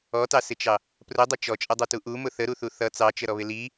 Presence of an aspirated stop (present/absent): absent